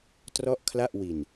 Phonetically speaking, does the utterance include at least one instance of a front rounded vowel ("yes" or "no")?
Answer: no